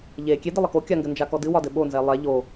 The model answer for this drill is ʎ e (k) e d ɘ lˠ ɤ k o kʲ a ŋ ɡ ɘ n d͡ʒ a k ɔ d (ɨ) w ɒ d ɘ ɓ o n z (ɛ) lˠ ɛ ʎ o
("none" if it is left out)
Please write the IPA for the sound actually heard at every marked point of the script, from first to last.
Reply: kʲ, ɨ, ɛ

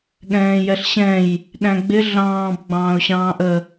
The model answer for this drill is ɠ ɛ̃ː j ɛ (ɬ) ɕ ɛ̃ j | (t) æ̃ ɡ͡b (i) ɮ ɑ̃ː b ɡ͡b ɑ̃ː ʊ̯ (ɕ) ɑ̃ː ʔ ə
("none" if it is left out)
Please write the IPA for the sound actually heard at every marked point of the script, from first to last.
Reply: ɬ, ɗ, ɪ, ɕ

